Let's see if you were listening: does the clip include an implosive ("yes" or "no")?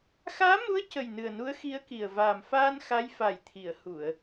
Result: no